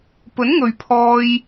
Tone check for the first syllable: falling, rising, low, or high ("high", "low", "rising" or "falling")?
rising